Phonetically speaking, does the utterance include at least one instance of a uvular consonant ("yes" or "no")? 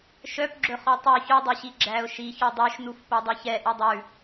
yes